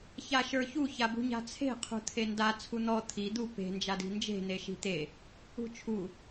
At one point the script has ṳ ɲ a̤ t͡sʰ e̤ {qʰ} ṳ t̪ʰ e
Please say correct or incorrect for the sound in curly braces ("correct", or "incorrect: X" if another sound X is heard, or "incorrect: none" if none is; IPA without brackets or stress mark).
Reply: correct